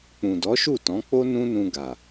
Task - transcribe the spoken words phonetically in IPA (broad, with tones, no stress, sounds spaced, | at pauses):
k͡p ũ˨ d ɔ˨˦ ʃ u˦˨ t ɔ̃˨˦ k͡p o˦ n ũ˦ n ũ˧ ɡ a˨